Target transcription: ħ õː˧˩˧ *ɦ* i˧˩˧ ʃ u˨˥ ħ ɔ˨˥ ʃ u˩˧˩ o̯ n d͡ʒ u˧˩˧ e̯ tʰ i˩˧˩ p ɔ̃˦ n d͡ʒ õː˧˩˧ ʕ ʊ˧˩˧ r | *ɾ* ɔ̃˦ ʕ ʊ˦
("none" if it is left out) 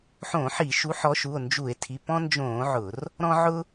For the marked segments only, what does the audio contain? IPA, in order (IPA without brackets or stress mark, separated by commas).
ħ, ɾ